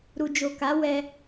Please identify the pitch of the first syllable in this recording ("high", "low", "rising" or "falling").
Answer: low